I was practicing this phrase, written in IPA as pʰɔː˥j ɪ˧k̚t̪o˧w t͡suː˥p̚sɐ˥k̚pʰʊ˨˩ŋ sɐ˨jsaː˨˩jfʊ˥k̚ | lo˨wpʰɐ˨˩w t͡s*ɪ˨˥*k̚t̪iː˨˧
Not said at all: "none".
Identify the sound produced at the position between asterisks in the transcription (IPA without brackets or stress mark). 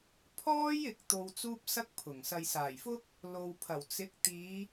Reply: ɪ˨˥